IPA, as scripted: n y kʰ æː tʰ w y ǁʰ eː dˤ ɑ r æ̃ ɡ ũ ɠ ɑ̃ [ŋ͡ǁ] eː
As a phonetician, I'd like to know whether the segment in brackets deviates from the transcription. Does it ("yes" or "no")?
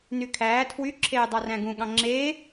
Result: no